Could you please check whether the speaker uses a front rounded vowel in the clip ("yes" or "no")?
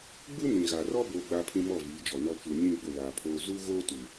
no